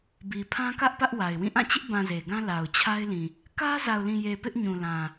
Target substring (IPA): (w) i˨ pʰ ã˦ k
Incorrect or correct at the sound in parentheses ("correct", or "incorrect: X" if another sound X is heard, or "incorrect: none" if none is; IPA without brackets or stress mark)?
incorrect: b